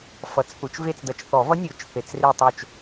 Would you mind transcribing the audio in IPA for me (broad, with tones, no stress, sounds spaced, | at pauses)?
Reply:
f ʌ˨˩˦ t͡s θ u˨˩˦ t͡ʃ v e˦˨ t͡s d ʌ˨˩˦ t͡ʃ θ ɔ˨˩˦ v ʌ˧˥ nʲ o˨˩˦ t͡ʃ θ e˨˩˦ t͡s r e˦˨ tˤ o˦˨ t͡ʃ